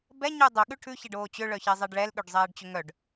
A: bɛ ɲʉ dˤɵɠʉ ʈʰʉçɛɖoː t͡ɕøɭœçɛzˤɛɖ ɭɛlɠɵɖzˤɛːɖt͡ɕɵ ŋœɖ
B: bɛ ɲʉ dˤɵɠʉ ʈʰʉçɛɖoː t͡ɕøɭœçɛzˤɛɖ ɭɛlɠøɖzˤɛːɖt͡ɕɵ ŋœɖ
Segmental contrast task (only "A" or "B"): B